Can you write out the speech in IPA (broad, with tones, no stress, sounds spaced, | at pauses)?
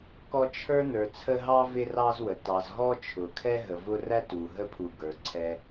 k ɔ˦ t͡ʃʰ ə˞˥ n ə˞˨ t͡sʰ ə˦ ɦ ɑ˥ v ɪ˦ r ɑ˦ z w ə˩ t ɑ˨ z ɦ ɔ˦ t͡ʃʰ ʊ˩ kʰ ɛ˦ ɦ ə˨ v ʊ˥ r æ˥ t u˩ ɦ ə˥ pʰ u˨ ɡ ə˞˩ ǀʰ ɛ˨